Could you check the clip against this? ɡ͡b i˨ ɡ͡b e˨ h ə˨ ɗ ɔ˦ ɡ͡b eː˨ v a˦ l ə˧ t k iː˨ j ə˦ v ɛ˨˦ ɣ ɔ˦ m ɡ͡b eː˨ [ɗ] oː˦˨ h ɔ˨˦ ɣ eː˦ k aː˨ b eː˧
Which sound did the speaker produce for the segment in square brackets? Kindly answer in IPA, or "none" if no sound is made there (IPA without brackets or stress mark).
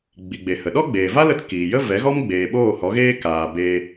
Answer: ɓ